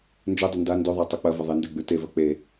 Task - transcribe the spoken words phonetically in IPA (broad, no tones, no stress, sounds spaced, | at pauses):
n d͡ʒ ɵ dˤ ɐ n d a n d ɵ ðˤ a tˤ o k͡p ɐ v ɐ ðˤ e n d e ɡ͡b ʉ t e v ɐ k͡p e